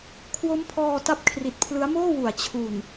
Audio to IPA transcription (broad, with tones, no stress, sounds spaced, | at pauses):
kʰ w o˦˥ m pʰ ɔː˧ t a˦˥ p̚ kʰ r i˨˩ t̚ pʰ l ɯ˦˥ a̯ m oː˥˩ w u˩˦ a̯ t͡ɕʰ u˨˩ n